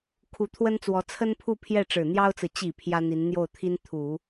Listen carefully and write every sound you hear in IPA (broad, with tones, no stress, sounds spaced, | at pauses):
kʰ u˧˥ t̪ʰ w ə˥ n t͡s w ɔ˧˥ t͡sʰ ə˥ n pʰ u˥˧ pʰ j ɛ˥˩ ʈ͡ʂ ɻ̩˨˩ n̪ j ɑ˥ ʊ̯ t͡s ɹ̩˨ t͡ɕ i˨˩ pʰ j ä˥ n̪ i˧˥ n n̪ j o˥˩ ʊ̯ t̪ʰ i˥ n t̪ʰ u˨˩˦